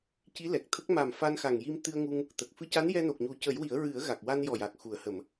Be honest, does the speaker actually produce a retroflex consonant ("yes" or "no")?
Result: no